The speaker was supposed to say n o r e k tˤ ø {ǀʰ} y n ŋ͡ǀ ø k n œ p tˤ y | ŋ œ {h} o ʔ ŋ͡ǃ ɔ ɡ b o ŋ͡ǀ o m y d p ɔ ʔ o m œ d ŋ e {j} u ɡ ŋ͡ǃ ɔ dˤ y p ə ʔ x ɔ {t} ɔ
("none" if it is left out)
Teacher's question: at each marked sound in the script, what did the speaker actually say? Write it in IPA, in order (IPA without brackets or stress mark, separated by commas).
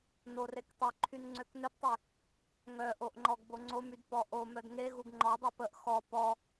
ǃʰ, ʔ, ɣ, p